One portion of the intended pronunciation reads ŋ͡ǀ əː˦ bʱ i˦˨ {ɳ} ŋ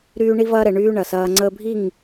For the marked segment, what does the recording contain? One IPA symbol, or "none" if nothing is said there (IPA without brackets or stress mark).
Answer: none